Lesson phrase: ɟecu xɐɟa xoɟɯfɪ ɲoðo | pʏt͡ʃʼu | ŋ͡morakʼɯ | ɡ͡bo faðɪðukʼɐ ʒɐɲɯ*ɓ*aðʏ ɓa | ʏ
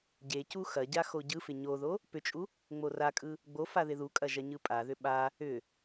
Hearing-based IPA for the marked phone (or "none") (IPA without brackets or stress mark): pʼ